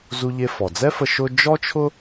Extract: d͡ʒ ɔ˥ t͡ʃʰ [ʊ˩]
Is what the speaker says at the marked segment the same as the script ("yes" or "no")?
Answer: no